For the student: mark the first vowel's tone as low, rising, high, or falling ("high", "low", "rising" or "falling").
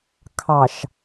low